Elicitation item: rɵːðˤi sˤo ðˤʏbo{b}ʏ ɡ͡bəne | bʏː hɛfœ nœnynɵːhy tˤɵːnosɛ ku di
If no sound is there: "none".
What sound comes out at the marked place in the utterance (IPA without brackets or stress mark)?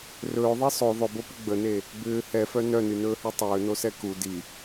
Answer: p